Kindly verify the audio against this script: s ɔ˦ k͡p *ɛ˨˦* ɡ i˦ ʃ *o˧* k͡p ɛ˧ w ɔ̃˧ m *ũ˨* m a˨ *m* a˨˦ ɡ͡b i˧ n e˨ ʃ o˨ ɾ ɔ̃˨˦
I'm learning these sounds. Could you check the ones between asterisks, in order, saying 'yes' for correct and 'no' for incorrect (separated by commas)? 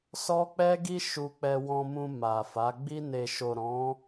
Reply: no, no, no, no